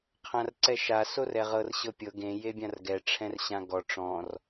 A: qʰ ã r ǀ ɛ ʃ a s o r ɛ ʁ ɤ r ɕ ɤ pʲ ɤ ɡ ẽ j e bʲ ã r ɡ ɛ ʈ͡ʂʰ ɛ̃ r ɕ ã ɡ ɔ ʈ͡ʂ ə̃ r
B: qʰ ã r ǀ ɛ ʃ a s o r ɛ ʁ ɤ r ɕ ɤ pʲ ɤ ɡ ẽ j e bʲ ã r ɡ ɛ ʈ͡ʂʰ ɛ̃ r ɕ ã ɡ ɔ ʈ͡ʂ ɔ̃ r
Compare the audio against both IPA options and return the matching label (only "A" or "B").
B